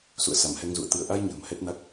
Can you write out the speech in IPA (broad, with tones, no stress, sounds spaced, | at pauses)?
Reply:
s ṵ˧˨ ə̯ s a˧˩ m h ɛ˧ ŋ z ṵ˧˨ ə̯ t̪ ɨ˧˩ ə̯ ʔ a˧ j ɲ ə̤ː˨˩ m h ɛ˦˥ t̚ n a˦˥ k̚